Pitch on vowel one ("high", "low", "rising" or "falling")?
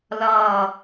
falling